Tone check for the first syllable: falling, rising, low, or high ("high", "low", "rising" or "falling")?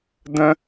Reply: high